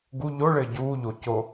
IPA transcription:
ɡ u ʎ o ɭ ɘː ɟ uː ʎ o c o

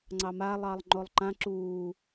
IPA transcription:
ŋ͡ǀ ɑ m a lˠ ɑ lˠ ŋ͡ǃ o lˠ ǃ ã ǁ uː

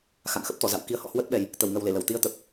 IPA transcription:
x a̰˧˨ ŋ x ə˦˥ p̚ t̪ ɔ˧˩ z a̰˧˨ w k i˨˦ ə̯ h ɔ̰˧˨ h w ə˦˥ t̚ ɓ ɛ˨˩ j | t̪ ə˧˩ w ŋ ə˨˩ w l e˧˩ l ə˧˩ w t̪ i˧ ə̯ t̪ ə˨˩ p̚

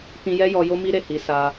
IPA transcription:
t ĩ˧ j ɛ˦ j ɔ˧ j o˦ m i˦ ɾ e˦˨ h i˨˦ s a˧

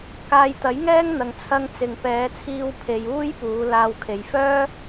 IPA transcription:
k aː˧ j t̪ ɐ˨˥ j ŋ ɛː˥ ŋ n̪ ɐ˨ ŋ t͡sʰ ɐ˧ ŋ t͡s ɪ˨ ŋ p ɛː˨˧ t͡sʰ iː˧ w pʰ e˨ j uː˥ j p uː˨˧ l aː˧ w kʰ e˨˧ j f œː˥

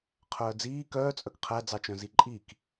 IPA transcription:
qʰ œː d͡z iː k œː t͡sʼ œ k qʰ æ d͡z ɑ t͡ʃ œ̃ z i ǃʼ i k

